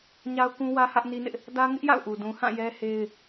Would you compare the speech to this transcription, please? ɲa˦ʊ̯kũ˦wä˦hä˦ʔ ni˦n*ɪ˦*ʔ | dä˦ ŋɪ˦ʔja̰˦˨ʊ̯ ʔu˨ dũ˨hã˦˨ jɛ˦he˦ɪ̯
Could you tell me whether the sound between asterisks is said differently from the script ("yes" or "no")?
no